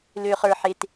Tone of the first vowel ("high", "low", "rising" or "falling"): low